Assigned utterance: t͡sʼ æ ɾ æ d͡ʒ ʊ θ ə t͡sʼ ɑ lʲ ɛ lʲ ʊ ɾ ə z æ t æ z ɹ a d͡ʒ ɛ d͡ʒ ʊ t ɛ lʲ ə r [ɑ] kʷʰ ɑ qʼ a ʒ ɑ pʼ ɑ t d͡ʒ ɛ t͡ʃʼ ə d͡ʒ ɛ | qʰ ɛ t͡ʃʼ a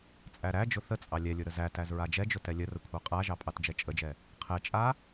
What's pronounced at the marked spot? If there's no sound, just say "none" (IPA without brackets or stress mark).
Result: ə